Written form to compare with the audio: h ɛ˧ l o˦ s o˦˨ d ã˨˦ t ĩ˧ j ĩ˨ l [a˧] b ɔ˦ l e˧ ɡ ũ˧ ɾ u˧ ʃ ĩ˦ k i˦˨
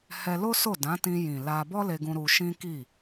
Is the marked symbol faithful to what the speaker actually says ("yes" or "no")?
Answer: yes